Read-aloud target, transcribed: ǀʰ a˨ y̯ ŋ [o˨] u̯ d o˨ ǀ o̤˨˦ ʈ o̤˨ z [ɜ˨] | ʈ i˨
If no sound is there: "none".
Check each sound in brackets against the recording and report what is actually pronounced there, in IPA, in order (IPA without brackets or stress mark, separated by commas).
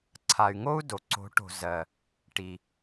o˦, ɜ˨